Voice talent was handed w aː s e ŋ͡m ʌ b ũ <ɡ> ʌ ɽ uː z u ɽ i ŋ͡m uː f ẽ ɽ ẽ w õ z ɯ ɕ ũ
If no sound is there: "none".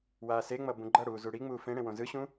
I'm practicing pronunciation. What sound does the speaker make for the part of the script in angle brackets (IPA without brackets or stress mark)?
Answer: ɡ͡ǃ